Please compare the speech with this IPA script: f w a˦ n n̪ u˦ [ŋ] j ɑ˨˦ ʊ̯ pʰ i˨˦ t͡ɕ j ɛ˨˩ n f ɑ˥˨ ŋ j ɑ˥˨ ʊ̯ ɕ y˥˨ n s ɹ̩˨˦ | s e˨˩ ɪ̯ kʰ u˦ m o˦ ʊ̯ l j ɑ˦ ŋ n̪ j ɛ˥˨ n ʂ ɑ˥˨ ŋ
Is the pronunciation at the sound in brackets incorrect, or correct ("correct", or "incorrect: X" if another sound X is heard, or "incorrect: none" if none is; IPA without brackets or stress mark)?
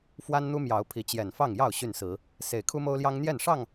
incorrect: m